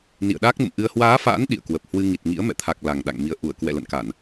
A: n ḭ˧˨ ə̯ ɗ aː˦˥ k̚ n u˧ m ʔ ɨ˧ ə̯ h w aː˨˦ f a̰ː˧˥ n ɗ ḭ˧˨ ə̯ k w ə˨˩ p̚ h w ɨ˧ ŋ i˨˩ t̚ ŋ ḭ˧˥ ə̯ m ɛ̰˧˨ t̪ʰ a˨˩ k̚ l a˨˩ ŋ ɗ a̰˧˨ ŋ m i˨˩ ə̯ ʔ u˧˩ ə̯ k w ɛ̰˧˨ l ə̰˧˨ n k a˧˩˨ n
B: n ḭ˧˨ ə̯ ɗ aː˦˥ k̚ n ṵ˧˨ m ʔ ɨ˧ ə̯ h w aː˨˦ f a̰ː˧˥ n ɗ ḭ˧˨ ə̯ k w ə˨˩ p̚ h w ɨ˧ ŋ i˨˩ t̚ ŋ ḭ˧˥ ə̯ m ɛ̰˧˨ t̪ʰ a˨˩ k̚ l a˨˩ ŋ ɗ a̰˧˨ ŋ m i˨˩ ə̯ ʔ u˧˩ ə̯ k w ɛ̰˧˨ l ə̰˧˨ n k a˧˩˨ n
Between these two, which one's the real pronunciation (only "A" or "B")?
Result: B